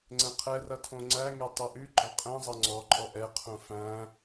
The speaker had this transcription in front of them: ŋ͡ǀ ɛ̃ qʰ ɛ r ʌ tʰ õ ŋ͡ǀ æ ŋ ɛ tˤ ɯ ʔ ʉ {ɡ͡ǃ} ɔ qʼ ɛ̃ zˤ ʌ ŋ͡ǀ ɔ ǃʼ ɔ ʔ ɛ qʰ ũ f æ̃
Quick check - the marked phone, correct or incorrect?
correct